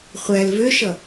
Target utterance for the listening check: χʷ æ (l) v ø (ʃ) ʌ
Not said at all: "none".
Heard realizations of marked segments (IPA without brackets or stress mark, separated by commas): l, ʃ